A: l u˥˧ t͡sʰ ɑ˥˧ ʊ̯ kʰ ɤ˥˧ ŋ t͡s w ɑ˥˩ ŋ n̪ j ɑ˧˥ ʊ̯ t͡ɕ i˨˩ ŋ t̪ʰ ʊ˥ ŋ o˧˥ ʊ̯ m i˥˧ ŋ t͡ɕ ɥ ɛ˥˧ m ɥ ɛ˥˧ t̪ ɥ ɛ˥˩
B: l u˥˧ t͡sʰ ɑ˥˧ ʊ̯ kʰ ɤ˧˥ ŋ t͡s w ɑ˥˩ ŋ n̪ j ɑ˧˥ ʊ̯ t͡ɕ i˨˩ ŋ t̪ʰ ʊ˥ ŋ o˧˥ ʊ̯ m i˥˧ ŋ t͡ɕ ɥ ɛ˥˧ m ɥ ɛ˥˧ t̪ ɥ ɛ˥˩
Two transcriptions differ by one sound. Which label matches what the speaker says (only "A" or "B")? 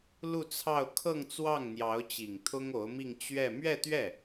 A